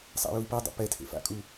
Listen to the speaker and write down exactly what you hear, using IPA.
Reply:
sˤa̰jui̯pedˤo̰ pɛtʰḛ fa̰kʼu

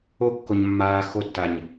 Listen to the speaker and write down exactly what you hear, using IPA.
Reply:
o kːoɲmːaː xotːaɲ

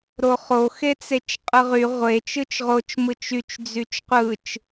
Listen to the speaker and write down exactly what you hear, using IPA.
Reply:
ɾoχo xet͡set͡ʃqʼɯʁy ʁʷe t͡ʃɯt͡ʃʁot͡ʃ mɯt͡ʃyt͡ʃ d͡zyt͡ʃqʷɯt͡ʃ

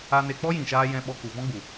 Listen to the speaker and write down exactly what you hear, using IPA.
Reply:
a˧ne˧ k͡pɔ˦jĩ˨ʃaː˧ jɛ̃˧ ɓɔ˧ku˨vɔ̃˦ɡ͡bu˨

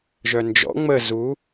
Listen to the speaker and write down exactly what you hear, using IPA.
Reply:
ʒœnd͡ʒɔ̰ ŋ͡mə zu

